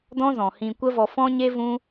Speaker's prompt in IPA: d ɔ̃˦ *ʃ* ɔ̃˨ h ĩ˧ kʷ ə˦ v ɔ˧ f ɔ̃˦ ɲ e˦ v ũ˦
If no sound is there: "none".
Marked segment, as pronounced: z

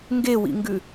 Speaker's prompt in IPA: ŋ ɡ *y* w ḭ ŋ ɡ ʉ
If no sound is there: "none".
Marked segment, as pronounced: e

